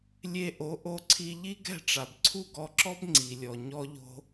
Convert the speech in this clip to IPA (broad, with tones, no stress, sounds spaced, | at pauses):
lʲ e˧ ʔ o˩˥ ʔ o˧ ǀʰ i˧ ʎ i˥ ɡ ɛ̤˥˩ ʈ͡ʂ a˩ b ǀʰ u˥˩ ɡ ɔ˧ ǁ ɔ˥ b ŋ͡ǀ i˩ lʲ ɔ˩ ɲ ɔ˥ ʎ o̤˥